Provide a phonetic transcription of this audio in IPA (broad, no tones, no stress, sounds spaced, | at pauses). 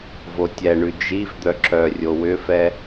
v o tʲ ɛ ɳ ʉ d͡ʒ i v d̪ œ ǁ œ rʲ o w ʏ f ɛ